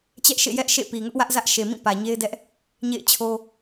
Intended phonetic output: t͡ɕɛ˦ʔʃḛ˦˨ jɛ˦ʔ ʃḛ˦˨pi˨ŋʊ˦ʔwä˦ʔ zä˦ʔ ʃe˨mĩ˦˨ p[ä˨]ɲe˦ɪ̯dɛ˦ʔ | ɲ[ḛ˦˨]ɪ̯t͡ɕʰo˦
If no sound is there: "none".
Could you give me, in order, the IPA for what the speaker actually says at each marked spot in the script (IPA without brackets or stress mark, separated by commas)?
ä˨, ḛ˦˨